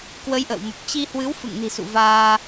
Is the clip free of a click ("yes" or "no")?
yes